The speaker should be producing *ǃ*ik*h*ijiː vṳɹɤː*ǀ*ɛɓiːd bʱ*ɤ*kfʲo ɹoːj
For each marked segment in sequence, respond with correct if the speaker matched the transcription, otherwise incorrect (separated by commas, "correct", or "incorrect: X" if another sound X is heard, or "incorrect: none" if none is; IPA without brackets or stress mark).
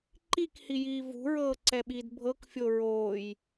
correct, correct, correct, correct